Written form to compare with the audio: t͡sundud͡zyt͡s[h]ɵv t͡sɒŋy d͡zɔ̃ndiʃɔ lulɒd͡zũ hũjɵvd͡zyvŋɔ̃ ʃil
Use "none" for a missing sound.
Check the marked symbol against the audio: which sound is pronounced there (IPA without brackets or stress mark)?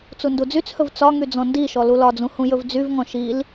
h